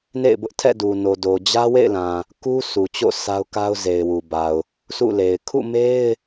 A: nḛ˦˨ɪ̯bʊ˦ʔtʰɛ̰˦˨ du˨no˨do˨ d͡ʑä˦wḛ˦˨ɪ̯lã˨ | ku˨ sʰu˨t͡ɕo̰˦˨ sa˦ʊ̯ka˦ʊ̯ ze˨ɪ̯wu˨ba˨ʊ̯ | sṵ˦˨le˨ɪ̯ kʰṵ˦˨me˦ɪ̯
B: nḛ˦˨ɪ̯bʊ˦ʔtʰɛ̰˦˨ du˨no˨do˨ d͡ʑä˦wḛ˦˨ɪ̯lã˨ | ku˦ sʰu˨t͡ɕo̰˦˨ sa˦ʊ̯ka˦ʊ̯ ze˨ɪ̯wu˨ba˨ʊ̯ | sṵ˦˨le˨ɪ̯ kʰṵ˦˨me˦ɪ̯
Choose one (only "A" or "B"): B